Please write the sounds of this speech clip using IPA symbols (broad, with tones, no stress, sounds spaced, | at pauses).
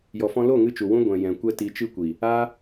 j ɔ˨ f ɔ̃˧ l o˦˨ ŋ ɨ˧ t͡ʃ u˨ w ũ˧ ɡʷ ɛ̃˨ j ɛ̃˨ kʷ ɛ˦ t i˧ t͡ʃ ɨ˦ kʷ i˨ | aː˦